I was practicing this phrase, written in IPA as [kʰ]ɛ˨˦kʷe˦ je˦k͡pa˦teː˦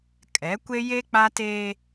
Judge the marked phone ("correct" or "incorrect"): incorrect